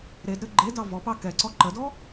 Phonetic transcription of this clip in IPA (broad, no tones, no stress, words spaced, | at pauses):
ɾedɾɘ ɡ͡ǃedɑ vɔpɑ kɛǀɔ ǃədɔ